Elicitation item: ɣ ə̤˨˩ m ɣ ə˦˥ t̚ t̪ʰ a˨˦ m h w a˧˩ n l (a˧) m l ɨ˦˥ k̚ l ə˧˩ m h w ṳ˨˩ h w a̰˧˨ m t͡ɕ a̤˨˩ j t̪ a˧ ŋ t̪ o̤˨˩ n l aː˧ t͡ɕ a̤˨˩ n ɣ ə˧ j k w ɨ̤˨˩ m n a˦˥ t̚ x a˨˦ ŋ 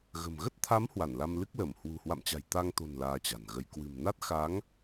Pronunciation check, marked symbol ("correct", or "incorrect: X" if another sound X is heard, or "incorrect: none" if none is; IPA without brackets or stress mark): correct